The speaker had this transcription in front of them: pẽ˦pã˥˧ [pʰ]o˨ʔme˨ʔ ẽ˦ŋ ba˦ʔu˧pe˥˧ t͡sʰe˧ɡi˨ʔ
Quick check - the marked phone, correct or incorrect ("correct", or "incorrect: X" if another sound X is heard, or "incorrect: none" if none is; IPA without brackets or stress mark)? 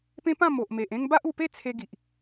incorrect: m